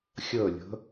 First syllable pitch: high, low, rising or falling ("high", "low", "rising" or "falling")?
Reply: falling